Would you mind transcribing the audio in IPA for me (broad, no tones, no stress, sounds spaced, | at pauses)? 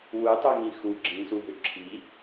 w u tˤ u ŋ ĩ x u ɡ͡ǁ ĩ s u ɦ ʏ ǁʰ i